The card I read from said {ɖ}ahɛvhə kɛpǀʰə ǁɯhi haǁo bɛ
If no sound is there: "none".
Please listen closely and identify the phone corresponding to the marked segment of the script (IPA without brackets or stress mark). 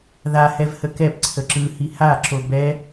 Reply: ð